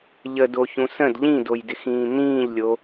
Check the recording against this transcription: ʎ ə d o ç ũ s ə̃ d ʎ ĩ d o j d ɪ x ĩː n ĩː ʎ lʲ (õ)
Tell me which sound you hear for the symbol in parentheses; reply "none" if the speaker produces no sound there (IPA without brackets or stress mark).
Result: o